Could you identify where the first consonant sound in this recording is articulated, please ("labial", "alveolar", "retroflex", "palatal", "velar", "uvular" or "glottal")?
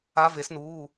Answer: labial